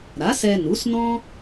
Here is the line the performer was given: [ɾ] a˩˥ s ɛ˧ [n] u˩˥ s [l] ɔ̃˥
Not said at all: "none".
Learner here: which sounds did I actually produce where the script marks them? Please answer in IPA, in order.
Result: ɾ, n, n

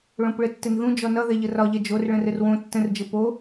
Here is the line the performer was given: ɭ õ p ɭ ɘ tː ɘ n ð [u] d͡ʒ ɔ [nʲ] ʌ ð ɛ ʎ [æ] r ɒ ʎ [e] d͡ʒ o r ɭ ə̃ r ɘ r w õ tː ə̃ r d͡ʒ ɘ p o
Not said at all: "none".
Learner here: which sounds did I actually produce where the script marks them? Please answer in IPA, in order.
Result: ũ, n, ə, ɛ

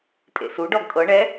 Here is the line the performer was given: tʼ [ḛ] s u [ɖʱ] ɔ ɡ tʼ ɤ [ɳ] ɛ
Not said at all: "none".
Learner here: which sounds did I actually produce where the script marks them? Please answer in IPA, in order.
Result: ḛ, ɖ, ɳ

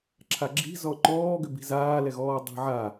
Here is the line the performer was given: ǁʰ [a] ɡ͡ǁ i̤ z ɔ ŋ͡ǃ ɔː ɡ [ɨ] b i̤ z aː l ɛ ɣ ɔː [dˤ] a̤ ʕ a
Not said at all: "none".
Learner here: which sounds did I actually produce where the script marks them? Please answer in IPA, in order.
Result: a, ʏ, dˤ

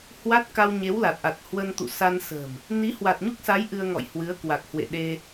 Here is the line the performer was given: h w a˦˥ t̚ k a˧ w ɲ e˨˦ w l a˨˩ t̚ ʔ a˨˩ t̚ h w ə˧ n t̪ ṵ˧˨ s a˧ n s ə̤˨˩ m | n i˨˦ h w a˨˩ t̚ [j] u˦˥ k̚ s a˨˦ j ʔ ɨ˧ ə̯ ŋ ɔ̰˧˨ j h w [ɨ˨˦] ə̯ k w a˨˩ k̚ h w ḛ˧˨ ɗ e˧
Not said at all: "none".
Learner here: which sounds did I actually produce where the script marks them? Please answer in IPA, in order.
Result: ɲ, ɨ˨˦

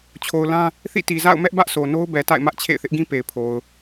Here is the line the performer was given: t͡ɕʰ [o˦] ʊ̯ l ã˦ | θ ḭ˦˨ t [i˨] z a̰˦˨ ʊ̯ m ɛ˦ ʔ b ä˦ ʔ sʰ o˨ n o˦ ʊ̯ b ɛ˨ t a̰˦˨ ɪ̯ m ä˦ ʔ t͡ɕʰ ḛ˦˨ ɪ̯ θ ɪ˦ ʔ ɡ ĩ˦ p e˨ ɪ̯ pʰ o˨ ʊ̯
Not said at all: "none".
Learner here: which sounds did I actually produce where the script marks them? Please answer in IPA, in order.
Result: o˨, i˨

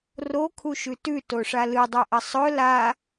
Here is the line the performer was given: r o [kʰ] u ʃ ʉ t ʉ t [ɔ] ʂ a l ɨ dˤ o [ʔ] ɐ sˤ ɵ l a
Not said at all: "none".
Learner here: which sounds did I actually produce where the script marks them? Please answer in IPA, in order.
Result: kʰ, o, ʔ

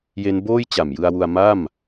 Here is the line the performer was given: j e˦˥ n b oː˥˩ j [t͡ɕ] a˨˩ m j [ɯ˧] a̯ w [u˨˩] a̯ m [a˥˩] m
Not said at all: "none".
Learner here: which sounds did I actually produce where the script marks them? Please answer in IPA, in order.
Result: t͡ɕ, ɯ˧, u˧, a˥˩

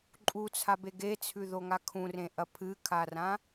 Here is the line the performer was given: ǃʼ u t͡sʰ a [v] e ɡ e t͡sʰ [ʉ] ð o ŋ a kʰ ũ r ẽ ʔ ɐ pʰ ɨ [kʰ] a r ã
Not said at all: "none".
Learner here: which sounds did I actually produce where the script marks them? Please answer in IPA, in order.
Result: b, ʉ, kʰ

